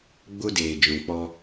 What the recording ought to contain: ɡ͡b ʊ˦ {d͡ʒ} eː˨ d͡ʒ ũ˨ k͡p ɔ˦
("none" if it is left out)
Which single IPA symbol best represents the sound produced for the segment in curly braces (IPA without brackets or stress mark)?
d